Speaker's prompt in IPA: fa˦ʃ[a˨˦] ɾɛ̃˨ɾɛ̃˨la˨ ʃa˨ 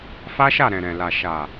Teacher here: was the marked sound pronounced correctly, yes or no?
no